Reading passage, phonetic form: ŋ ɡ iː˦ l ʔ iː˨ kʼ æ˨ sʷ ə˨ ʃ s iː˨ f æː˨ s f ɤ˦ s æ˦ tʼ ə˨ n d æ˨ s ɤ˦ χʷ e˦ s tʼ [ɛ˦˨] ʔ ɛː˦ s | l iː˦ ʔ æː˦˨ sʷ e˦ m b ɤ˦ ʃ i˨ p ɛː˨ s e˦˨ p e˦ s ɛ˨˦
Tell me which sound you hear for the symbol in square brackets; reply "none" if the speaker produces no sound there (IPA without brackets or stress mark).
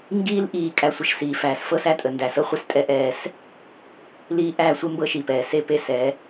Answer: ɛ˦